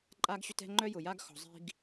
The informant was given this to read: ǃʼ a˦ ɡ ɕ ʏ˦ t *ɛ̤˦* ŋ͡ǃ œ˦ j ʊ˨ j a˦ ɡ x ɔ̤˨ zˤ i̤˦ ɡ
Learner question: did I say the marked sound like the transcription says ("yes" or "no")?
yes